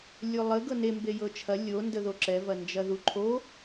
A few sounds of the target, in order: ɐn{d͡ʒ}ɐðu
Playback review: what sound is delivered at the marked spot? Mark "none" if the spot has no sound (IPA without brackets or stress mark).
d͡ʒ